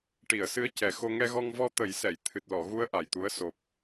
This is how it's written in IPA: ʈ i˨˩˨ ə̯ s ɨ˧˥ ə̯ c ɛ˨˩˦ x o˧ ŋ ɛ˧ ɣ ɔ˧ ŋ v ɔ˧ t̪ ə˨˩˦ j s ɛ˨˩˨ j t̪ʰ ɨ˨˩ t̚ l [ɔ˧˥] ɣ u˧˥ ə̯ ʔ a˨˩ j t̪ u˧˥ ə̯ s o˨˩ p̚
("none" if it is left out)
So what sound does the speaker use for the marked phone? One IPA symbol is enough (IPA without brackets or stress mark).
ɔ˨˩˨